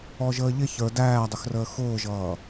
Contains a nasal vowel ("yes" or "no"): no